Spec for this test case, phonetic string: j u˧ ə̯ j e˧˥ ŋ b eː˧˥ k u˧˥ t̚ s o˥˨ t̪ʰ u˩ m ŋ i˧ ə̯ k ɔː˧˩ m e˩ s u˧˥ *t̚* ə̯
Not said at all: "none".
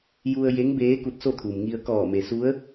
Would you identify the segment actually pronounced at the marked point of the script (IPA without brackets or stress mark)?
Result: none